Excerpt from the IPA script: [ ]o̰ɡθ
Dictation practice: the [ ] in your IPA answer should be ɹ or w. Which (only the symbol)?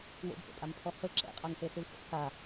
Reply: w